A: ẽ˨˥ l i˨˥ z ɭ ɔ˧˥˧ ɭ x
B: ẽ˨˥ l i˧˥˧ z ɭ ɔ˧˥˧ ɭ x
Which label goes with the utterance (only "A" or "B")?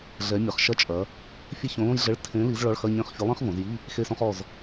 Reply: A